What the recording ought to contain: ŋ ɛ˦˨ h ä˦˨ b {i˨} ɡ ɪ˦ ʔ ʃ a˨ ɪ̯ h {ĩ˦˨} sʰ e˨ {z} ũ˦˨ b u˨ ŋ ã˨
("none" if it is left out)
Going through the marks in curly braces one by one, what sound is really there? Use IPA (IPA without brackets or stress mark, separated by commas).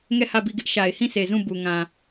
i˦˨, ĩ˦˨, z